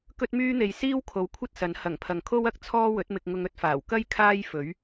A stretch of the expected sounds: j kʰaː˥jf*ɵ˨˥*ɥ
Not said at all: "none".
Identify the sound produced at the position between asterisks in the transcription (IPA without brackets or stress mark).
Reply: ɵ˨˥